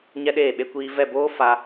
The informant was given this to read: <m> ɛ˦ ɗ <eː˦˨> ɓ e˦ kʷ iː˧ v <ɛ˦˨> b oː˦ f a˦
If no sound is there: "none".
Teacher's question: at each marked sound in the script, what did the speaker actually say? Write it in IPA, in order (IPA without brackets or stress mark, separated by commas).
ɲ, eː˦˨, ɛ˦˨